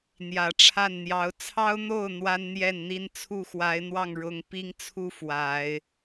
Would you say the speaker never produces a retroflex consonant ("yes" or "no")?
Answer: no